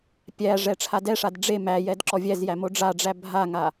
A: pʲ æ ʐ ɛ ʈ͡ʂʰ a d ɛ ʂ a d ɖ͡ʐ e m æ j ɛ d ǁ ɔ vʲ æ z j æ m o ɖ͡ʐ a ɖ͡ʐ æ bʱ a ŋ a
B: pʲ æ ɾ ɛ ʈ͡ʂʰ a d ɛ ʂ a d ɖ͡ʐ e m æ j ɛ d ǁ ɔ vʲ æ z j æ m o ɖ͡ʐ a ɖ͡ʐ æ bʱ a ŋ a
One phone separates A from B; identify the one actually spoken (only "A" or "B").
A